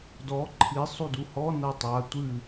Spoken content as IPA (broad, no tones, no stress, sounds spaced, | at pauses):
d ɔ ǃʰ i sˤ u d u h ɔ n ɐ tˤ a tʷ ɨ